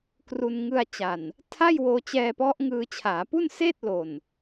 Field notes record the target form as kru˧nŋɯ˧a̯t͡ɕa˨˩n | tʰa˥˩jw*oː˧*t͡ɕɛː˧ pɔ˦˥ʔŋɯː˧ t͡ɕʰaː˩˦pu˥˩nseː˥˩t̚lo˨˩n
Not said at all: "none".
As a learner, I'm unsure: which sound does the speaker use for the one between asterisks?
oː˧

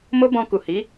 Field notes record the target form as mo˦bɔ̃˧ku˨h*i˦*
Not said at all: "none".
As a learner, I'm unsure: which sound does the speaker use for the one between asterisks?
i˨˦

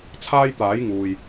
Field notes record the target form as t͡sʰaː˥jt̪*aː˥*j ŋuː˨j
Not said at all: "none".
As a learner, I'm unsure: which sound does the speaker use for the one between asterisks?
aː˨˥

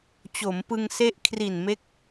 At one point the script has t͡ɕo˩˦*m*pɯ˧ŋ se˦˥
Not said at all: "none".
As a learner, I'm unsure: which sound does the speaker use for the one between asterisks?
m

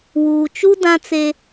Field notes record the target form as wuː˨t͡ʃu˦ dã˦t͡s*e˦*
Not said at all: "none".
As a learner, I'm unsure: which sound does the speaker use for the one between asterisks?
e˦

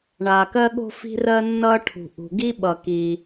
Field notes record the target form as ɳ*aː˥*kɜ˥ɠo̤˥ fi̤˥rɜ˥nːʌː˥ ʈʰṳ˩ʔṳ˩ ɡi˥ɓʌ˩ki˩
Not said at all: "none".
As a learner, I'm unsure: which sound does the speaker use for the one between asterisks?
aː˩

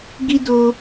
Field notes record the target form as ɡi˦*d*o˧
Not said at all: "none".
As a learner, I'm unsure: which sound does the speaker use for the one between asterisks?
d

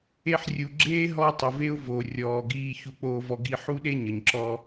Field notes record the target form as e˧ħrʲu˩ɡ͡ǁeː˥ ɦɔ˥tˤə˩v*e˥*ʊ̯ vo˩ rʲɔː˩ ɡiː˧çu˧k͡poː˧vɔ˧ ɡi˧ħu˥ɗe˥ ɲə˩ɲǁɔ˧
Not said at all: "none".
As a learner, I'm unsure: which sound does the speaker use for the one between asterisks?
e˥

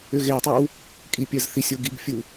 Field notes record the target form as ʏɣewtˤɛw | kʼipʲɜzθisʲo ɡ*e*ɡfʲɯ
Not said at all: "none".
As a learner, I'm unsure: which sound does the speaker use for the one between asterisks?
i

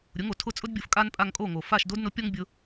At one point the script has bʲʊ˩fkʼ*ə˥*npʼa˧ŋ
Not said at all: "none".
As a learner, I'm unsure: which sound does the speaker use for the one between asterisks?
a˥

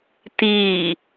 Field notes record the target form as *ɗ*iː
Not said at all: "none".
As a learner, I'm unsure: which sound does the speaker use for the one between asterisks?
t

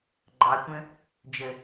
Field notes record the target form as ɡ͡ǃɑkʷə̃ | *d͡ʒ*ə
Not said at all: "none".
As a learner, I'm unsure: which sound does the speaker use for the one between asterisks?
d͡ʒ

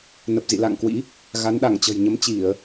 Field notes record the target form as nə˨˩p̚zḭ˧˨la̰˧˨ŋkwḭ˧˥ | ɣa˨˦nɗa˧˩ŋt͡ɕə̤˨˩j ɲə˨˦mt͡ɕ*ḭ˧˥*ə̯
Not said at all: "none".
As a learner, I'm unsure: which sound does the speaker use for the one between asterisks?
i˧˩˨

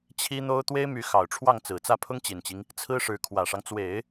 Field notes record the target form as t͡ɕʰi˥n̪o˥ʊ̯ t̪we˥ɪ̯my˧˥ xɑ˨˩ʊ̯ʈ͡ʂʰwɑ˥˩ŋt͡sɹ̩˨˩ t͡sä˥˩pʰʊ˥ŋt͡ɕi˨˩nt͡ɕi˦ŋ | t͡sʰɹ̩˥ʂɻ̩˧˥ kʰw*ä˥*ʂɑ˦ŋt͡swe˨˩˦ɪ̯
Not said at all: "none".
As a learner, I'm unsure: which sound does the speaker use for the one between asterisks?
ä˨˩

